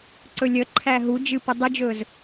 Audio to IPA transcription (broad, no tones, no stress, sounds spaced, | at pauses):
ǀ ɵ lʲ ə ǃʰ æ ɦ u d͡ʒ ɨ p ʊ dˤ ʊ d͡ʒ ɵː z